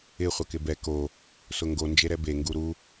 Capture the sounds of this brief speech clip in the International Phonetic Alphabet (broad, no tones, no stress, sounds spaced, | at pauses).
ɪ χʷ a k ɪ b ɛ k o | s ʊ ŋ ɡ o n d͡ʒ e ɾ ɛ b e ŋ ɡ u ɾ u